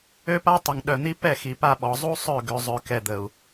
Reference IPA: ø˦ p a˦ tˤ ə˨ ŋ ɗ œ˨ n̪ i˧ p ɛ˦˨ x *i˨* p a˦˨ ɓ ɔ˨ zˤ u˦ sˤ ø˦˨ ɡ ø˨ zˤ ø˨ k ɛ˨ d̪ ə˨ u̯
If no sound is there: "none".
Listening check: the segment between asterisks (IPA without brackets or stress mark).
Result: i˨